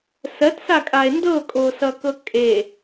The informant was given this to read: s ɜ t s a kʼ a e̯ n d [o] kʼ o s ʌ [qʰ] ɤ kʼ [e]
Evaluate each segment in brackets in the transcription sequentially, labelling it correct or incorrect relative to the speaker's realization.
incorrect, incorrect, correct

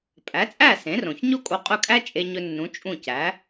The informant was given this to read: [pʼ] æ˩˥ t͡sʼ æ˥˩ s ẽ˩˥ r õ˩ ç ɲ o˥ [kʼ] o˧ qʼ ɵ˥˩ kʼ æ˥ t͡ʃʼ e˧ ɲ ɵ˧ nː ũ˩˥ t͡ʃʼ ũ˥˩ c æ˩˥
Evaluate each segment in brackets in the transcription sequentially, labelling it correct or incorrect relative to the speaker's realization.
correct, correct

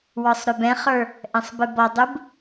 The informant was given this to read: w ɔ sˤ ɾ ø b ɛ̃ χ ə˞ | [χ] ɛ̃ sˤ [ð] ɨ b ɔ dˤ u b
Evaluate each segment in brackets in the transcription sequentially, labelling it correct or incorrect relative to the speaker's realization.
incorrect, incorrect

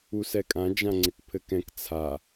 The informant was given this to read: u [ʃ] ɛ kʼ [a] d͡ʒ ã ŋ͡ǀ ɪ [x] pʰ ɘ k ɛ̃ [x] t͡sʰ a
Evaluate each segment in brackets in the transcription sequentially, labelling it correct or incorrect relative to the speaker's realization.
incorrect, incorrect, incorrect, incorrect

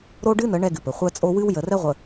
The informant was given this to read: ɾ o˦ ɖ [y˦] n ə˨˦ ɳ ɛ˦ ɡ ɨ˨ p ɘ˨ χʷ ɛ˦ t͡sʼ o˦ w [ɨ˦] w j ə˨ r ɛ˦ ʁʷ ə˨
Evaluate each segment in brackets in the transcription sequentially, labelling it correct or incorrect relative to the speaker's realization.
incorrect, correct

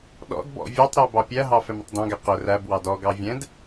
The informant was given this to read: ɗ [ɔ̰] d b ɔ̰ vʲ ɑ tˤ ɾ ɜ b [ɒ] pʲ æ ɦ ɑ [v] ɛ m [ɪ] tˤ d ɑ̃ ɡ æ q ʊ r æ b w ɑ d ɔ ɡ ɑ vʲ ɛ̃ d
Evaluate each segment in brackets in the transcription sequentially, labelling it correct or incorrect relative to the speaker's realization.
correct, incorrect, incorrect, correct

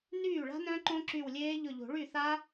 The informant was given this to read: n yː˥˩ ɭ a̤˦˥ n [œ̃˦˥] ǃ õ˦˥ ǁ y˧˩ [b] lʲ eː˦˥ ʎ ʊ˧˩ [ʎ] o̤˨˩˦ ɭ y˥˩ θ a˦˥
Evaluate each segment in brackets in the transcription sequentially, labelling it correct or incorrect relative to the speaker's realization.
correct, incorrect, correct

